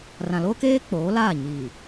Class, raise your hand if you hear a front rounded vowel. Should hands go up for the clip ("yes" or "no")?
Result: no